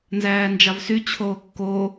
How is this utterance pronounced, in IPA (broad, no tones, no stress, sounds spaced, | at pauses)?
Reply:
n z æː n d͡ʒ ɑ v s y t͡ɕʰ oː kː o